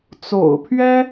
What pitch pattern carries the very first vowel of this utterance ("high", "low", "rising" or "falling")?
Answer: low